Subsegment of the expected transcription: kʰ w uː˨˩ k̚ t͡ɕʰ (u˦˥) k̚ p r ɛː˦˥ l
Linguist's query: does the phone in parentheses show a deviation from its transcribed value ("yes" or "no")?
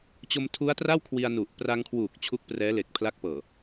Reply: no